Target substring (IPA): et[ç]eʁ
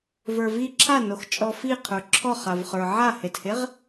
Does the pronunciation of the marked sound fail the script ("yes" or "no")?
yes